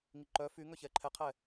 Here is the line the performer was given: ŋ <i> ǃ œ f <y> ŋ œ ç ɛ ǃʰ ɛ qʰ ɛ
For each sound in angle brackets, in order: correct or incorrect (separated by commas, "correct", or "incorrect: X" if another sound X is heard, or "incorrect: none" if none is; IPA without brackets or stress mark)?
correct, correct